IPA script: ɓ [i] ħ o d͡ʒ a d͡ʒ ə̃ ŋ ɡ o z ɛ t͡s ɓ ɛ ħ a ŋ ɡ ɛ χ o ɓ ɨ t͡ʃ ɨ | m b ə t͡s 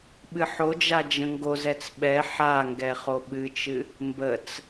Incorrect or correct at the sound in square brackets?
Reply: incorrect: ɨ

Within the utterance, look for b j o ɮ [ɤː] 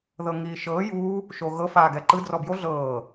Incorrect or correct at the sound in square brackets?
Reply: correct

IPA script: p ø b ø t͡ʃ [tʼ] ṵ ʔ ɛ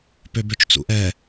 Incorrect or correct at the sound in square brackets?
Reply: incorrect: t͡s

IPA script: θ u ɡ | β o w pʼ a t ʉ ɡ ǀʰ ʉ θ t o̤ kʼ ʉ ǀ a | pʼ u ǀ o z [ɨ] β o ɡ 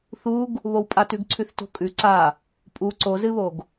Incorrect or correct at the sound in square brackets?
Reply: correct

